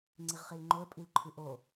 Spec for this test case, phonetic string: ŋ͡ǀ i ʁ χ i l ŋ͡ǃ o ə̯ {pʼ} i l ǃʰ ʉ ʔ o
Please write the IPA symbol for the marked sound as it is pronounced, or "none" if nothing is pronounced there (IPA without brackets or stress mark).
pʼ